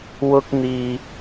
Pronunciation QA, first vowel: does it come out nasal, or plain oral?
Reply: oral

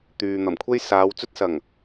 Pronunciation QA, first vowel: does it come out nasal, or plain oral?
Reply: oral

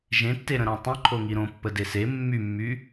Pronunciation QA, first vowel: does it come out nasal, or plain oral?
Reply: nasal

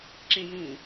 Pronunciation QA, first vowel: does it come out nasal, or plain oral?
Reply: nasal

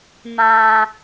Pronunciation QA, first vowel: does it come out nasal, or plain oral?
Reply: nasal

